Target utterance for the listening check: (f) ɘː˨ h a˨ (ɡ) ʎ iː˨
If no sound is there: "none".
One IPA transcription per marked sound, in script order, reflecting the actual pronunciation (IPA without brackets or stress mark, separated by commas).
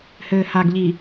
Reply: h, ɡ